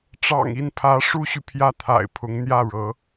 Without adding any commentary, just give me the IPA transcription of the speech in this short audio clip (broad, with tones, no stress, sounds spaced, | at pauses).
ʈ͡ʂ ɑ̰˨˩ ŋ i˥˩ n pʰ ä˧˥ ʂ u˥ ɕ y˨ pʰ j ä˥˩ t̪ʰ a̰˨˩ ɪ̯ pʰ ʊ˧˥ ŋ n̪ j ä˥˩ ɻ ɤ˧˥